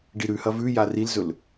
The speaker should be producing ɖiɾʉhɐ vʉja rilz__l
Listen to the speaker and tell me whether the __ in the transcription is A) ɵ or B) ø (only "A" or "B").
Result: A